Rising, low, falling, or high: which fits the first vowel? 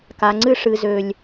low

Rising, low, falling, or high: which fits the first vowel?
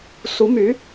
rising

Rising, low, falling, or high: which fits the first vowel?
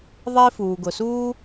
high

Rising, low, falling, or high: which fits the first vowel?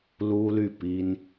high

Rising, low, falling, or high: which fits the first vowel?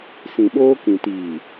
low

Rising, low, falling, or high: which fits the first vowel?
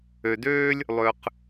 low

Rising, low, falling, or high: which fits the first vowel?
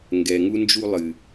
low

